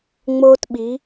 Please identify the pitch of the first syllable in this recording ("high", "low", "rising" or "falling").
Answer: high